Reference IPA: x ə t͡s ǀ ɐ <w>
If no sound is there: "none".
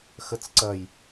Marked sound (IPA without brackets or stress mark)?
j